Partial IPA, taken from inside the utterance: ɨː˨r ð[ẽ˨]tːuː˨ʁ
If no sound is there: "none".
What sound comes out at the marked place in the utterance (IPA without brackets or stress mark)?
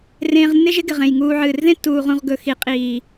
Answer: ẽ˦